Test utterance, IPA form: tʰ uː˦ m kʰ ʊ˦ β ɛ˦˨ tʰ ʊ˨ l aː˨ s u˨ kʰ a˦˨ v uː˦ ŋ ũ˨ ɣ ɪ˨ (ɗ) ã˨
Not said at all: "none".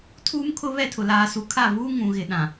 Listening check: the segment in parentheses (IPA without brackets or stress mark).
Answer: ɗ